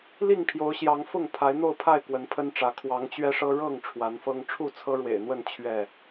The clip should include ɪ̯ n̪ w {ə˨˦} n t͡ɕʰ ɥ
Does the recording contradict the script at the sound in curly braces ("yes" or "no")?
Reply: yes